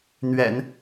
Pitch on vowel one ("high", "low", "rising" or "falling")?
low